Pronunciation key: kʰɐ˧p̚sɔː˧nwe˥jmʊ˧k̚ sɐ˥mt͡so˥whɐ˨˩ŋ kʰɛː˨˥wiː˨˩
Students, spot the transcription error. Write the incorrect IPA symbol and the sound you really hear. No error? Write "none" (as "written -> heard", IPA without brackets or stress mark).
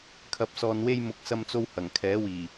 none